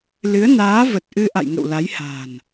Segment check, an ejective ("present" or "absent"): absent